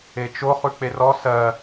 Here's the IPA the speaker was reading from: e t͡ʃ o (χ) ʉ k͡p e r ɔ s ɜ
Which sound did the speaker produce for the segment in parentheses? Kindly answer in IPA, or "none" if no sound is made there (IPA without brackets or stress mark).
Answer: χ